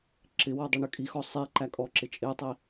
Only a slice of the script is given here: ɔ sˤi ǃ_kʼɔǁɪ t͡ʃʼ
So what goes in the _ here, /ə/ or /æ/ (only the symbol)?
æ